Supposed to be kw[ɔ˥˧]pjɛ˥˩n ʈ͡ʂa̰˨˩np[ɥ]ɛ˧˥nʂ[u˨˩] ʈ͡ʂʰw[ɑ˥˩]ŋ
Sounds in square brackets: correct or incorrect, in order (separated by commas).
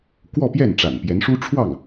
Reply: correct, incorrect, incorrect, correct